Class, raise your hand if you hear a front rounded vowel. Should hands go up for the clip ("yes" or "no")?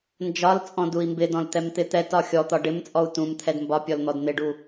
no